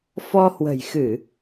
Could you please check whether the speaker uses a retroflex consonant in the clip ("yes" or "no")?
no